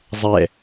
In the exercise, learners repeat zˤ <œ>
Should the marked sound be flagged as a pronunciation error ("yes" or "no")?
yes